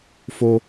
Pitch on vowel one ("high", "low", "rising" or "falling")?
high